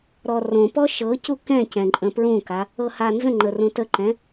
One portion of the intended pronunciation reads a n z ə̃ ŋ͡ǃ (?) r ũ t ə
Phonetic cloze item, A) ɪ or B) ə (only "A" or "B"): B